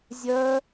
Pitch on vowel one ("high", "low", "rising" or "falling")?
high